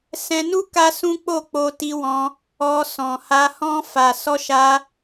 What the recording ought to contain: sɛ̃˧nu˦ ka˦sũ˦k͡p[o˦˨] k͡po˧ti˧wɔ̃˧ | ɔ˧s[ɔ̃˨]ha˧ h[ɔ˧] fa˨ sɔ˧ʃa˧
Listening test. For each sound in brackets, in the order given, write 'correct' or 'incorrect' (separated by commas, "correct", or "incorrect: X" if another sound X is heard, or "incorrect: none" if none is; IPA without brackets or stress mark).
correct, correct, incorrect: ɔ̃˧